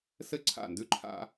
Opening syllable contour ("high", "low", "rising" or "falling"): high